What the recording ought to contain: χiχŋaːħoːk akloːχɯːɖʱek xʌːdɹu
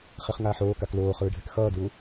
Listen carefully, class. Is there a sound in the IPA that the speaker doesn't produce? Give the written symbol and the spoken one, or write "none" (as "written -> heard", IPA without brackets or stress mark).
none